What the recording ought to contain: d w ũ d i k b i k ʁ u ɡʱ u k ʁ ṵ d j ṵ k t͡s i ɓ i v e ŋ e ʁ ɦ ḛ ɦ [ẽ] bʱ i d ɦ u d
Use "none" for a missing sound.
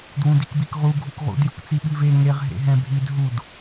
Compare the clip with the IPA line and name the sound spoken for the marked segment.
ɛ̃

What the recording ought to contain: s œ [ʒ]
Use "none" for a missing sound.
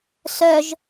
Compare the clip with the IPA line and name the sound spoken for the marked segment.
ʒ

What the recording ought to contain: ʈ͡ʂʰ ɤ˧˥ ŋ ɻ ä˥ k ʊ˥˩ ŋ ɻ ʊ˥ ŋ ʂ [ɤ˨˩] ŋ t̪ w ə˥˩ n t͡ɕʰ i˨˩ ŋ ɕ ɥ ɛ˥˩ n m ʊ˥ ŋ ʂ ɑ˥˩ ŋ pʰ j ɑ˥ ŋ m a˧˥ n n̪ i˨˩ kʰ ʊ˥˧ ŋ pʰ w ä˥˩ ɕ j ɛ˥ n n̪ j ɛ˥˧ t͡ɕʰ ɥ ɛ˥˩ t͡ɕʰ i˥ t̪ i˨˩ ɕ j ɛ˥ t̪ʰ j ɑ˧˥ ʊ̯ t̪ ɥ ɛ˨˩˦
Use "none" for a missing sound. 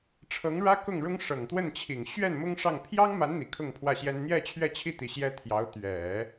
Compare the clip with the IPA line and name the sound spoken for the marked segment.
ɤ˨˩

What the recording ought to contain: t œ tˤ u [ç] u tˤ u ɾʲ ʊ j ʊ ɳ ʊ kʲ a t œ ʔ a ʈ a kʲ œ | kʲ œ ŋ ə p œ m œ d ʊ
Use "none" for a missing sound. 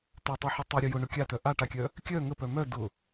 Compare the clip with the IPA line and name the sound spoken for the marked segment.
ħ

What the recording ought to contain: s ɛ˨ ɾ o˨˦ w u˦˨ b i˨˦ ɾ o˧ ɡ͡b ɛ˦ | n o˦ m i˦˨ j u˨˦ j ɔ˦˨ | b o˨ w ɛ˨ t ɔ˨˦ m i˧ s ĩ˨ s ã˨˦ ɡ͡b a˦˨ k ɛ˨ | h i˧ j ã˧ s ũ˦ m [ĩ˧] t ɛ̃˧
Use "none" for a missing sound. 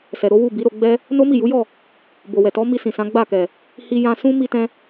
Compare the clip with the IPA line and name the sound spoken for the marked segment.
i˧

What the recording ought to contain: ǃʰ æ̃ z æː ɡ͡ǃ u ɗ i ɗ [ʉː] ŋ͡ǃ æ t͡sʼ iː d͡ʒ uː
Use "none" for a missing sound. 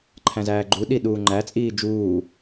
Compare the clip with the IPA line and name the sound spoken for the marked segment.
uː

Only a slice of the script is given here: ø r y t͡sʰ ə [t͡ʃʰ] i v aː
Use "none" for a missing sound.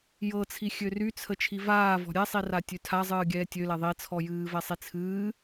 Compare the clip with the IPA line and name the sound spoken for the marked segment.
t͡ʃʰ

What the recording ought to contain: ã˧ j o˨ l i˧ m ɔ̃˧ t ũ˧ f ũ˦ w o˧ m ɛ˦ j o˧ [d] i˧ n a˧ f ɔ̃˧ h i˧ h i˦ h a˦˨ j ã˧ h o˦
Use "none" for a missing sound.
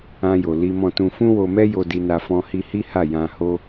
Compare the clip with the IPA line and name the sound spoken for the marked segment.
d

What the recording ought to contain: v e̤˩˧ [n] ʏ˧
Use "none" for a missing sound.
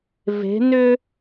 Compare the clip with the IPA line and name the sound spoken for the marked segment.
n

